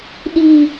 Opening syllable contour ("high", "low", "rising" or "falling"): high